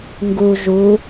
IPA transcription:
ŋ ɡ u ʒ u

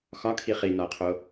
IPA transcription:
x ɒ kʰ i χ i n ɒ ɐ̯ qʰ o

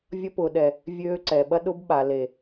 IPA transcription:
vʲ ɐ˦ p ʊ˨ ɗ ɛ˨ | vʲ øː˦ ǀ ɛ˨ ɓ ɐ˦ ɗ ʊ˦ b ɓ a˨ l e˨

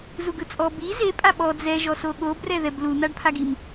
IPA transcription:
z u ɡ ɯ t͡sʼ ɔ b i z e pʼ a ɓ ɔ d͡z ɛ ʒ ɔ s o ɠ o b r ɛ ð ɛ b l u n̪ a ɖ pʰ a ɡ i m

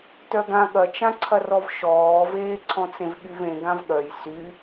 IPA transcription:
t œ ɡ ã ɠ ɐ t͡ʃ ã ǀʰ ɐ r ɔ v ʃ ɔː v eː ǀʰ ɔ̃ t͡s ẽ v ɠ y v ẽ ɡ ã v ɠ œ j s y

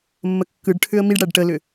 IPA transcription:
mː ə kː ɯ ɖ ʈʰ ʏ ə̯ m i ɖ ɽ æ ɖ ʈ ə l ʏ

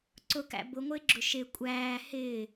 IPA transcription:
ǀ ʊ k æ̰ b ʊ ŋʷ ɪː ɡ͡ǁ ʊ ʃ ɪ kʷʼ æː h ɪː

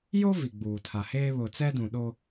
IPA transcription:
j o˦ v i˨ ɡ͡b uː˨ tʰ a˨ h eː˦ β ʊ˨ t͡s ɛ˦ d ũ˨ ɗ o˦

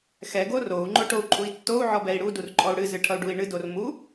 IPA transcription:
x ɛ ɡ o r o u̯ ŋ͡ǃ o ʈ o u̯ ǃʼ u i̯ tː o u̯ ʕ ɔ b ɛ i̯ ɽ u d u r ǃʼ ɔ u̯ ɽ ɨ z ɨ ʈʰ ʌ u̯ ɖ u i̯ ɳ ɨ d o r m u

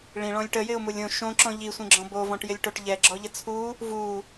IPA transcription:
ɭ ĩ ɭ ɔ̃ lʲ ʈ ə j ɪ ʊ̯ m u lʲ õ ʃ õ ǁ ɔ̃ ʎ i sʷ ĩ ɡ͡ǁ ɔ̃ b o v ɔ̃ ʈ j ɪ lʲ ʈ o ʈ ʎ ɛ ɡ͡ǁ ɔ ʎ ə t͡sʰ u | v u

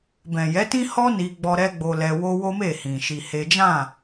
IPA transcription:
b ɛ̃˨ j ɛ˨˦ t ĩ˦ h ɔ˦ n i˦ ɡ͡b ɔ˦ ɾ ɛ˦ ɡ͡b o˧ l ɛ˧ w o˦ w o˦ m e˦˨ h ĩ˨ ʃ i˧ h e˦ d͡ʒ ã˦˨

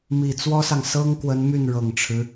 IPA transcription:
m i˨˩ t͡s w ɔ˥ s ɑ˨ ŋ s ɤ˥ ŋ k w ə˧˥ n m y˥˩ n ɻ ɤ˨˩ ŋ ʈ͡ʂʰ ɻ̩˦

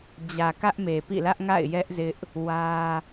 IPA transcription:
d͡ʑ ä˨ k ä˦ ʔ m e˨ p ḭ˦˨ l ä˦ ʔ ŋ a̰˦˨ ɪ̯ j ɛ˦ ʔ z ɪ˦ ʔ | w ä˦

